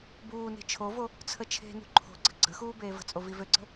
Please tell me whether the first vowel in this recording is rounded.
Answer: yes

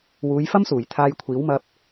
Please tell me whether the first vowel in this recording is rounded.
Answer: yes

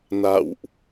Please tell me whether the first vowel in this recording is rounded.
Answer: no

